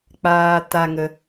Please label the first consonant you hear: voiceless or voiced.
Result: voiceless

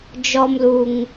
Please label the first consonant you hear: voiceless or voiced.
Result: voiced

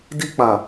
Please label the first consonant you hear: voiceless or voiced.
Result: voiced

